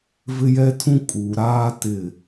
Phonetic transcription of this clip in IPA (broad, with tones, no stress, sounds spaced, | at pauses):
v ɪ˦ j ɛ˦ tʰ ũ˦ kʼ uː˨ ɾ aː˦ t ɪ˦˨